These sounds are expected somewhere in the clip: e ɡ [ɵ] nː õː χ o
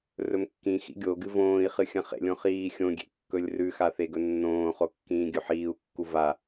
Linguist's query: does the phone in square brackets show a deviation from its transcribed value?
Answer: no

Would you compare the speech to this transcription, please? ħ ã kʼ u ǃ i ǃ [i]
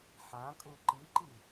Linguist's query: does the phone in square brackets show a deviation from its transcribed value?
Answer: no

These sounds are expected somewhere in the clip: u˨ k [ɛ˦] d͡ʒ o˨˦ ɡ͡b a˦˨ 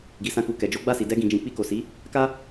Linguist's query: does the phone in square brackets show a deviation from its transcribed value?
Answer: yes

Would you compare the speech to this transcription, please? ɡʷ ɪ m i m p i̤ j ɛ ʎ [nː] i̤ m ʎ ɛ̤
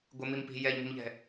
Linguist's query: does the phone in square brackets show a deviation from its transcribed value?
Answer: yes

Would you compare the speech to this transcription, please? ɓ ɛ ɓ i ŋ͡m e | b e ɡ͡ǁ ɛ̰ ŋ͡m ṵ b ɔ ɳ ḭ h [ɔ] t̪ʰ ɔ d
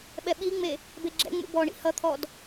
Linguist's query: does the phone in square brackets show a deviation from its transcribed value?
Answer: yes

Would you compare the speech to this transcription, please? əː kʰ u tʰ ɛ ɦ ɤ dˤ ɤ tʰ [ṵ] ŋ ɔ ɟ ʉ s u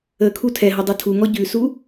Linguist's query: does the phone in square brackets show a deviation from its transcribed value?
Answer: yes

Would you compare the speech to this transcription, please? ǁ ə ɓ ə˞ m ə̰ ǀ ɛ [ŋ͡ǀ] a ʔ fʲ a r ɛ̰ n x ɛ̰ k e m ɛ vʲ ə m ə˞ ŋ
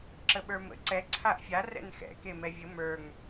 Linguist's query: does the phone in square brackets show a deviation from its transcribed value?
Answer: yes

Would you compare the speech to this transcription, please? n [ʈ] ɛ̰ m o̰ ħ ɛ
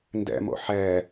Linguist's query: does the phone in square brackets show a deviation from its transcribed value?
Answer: yes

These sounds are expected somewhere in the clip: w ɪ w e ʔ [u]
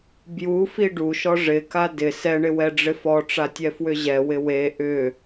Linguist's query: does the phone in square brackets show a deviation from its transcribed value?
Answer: yes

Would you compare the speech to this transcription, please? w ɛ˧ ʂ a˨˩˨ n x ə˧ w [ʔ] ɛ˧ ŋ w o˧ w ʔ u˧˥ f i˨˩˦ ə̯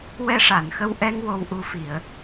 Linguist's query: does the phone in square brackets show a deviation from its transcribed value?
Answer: no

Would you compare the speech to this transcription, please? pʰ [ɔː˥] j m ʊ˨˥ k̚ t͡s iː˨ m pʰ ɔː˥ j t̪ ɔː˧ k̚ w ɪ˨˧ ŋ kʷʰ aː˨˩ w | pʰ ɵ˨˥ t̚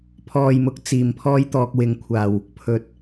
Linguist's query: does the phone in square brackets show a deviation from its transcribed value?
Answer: yes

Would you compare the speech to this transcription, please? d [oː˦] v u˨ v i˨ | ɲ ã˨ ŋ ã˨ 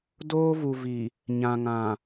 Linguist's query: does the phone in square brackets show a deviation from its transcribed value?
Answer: no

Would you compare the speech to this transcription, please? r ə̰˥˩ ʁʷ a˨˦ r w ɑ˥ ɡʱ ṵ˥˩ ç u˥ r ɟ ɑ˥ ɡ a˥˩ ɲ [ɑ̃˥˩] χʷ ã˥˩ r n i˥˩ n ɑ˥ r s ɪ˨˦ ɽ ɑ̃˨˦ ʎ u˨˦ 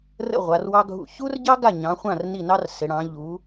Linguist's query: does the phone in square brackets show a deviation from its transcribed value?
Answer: yes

